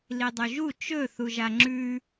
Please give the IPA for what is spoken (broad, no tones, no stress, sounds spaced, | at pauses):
l i dˤ ɵ ʒ u t͡ʃ ɵ θ u ʒ a ŋ͡ǁ ʉ